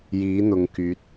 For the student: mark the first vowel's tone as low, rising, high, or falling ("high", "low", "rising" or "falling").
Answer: rising